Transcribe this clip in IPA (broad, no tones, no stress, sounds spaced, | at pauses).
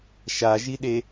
ʃ a ʒ i ɗ e